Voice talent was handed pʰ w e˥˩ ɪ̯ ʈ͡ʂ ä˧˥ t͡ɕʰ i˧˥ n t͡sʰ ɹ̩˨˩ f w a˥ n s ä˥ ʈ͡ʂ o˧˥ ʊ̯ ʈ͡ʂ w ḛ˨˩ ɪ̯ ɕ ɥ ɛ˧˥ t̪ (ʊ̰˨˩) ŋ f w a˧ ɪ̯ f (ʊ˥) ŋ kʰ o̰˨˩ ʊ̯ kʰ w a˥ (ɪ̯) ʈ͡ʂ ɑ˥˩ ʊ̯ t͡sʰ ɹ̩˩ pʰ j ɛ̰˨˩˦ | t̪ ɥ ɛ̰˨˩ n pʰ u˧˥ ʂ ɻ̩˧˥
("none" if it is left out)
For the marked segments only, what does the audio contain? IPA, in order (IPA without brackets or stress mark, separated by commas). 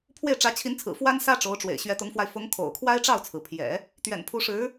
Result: ʊ˧˥, ʊ˧˥, ɪ̯